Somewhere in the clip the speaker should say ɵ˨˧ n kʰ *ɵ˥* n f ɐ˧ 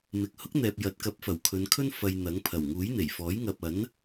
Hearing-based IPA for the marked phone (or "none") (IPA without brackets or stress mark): ɵ˥